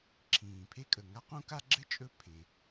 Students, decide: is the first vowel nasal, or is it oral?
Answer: nasal